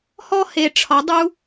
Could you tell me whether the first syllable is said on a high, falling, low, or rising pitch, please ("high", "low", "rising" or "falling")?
high